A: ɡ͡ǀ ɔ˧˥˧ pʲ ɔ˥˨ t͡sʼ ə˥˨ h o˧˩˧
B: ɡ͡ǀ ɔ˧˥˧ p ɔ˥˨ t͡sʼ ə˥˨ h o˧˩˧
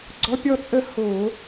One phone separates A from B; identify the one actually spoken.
A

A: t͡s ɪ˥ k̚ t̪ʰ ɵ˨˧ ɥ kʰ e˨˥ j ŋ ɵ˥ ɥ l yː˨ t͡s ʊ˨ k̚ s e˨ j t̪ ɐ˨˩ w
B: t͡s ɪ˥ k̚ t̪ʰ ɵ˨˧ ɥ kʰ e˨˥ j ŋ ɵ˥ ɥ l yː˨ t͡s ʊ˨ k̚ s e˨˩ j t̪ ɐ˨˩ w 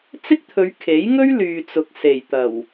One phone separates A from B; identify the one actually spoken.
B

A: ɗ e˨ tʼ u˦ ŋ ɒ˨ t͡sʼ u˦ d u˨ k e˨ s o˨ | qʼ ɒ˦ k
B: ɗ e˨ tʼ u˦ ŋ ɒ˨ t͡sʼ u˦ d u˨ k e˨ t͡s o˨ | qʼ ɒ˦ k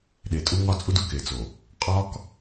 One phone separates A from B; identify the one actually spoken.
B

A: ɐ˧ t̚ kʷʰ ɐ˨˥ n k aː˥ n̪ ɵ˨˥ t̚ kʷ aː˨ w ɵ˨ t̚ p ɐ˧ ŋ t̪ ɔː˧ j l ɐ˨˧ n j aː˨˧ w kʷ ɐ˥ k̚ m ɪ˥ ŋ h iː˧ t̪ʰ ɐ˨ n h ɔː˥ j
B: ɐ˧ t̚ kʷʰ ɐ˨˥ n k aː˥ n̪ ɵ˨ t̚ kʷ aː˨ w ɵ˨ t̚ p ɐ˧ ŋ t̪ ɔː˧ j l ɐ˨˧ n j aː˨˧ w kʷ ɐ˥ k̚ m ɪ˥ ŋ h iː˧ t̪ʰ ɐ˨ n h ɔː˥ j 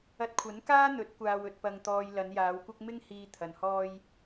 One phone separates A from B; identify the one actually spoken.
A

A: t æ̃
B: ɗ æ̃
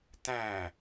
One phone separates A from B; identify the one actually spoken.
A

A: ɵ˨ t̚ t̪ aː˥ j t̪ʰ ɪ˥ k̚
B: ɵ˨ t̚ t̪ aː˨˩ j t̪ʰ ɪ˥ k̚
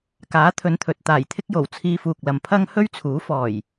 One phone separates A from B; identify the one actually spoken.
B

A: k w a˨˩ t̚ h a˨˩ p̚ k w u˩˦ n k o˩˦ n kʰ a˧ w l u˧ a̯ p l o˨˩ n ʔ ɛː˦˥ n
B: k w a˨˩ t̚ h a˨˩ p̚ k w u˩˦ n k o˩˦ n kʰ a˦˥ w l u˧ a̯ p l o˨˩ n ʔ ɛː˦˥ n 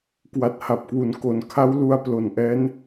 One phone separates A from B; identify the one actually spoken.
B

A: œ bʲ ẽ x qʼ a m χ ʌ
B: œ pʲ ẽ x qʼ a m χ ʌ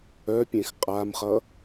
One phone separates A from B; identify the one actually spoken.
B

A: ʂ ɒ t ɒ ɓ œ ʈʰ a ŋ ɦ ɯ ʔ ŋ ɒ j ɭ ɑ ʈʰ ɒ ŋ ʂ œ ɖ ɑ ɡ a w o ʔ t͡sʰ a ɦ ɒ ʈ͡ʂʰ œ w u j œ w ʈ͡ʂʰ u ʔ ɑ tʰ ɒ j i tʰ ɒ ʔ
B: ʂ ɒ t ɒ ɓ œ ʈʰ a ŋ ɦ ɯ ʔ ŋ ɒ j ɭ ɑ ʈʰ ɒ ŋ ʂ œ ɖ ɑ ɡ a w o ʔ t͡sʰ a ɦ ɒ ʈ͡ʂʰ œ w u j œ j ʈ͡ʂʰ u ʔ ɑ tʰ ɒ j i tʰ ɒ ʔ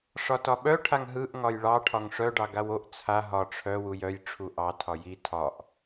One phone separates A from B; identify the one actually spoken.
B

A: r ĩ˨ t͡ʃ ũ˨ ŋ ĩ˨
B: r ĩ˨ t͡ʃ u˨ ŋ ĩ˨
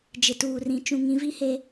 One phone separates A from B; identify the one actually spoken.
A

